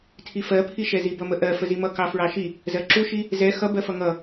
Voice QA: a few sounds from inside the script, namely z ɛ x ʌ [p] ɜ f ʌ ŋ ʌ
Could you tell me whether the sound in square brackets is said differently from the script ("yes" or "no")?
yes